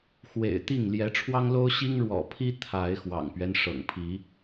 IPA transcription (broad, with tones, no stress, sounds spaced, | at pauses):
x w ḛ˨˩ ɪ̯ t̪ i˥˨ ŋ l j ɛ˨˦ ʈ͡ʂʰ w ɑ˦ ŋ l o˦ ʊ̯ ɕ i˦ ŋ ɻ w ɔ̰˨˩ pʰ i˦ t̪ʰ a˨˦ ɪ̯ x w ɑ̰˨˩ ŋ p ɥ ɛ˦ n ʂ ɤ̰˨˩ ŋ pʰ i˨˦